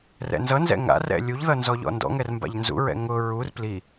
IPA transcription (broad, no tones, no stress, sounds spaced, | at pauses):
r ɛ̰ n z ʌ n z ɛ̰ ŋ a̰ r ɛ̰ lʲ u ʎ ð ʌ n z ɔ ʎ ɔ̰ n d ɔ̰ ŋ ɛ r m b a̰ ʎ n z ṵ ɹ ɛ̰ ŋ ʊ ɹ u r p l i